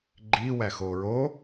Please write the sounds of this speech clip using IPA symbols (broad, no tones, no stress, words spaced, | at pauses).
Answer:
ɡ͡ǃi wæxoɹo